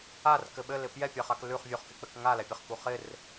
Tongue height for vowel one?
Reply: low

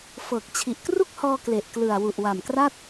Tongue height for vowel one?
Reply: mid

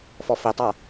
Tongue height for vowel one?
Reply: mid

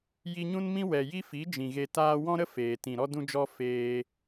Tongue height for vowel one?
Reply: high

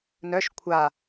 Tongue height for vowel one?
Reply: mid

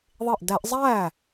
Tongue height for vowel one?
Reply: high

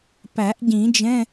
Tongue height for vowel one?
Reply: low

